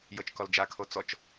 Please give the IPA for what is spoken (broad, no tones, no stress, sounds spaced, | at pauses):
j ɤ t͡ʃ k ɔ l d͡ʒ a kʰ o t͡s ɔ t͡ʃ